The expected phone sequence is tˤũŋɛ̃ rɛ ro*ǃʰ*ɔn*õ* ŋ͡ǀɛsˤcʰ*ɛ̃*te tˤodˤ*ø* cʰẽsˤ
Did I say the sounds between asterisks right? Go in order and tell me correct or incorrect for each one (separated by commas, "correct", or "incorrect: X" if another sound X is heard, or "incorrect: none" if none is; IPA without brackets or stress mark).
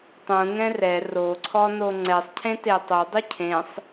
incorrect: ǀʰ, incorrect: o, incorrect: ẽ, incorrect: u